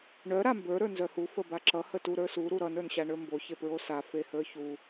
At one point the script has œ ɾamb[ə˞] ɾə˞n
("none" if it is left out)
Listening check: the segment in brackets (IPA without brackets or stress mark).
ə˞